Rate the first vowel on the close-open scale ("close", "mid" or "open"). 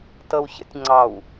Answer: mid